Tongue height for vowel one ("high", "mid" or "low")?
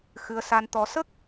high